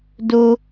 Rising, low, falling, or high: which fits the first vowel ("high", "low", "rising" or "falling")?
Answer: high